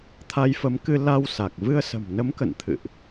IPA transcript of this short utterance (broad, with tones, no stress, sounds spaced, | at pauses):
t̪ʰ a˧ j f ə˨˦ m k ɨ˧ l a˧ w s a˨˩ k̚ v ɨ˧ ə̯ s ə̤˨˩ m n ə˨˦ m k ə̰˧˨ n t̪ʰ ɨ̰˧˨ ʔ